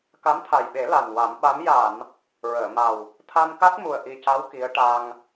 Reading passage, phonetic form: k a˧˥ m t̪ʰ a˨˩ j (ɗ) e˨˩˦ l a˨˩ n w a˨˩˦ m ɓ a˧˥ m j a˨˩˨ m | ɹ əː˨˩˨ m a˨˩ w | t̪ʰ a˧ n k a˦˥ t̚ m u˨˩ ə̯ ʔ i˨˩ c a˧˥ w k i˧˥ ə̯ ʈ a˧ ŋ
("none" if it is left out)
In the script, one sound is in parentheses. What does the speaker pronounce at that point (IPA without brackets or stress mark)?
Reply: ɓ